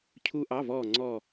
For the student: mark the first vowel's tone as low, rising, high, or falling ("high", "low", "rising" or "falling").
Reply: high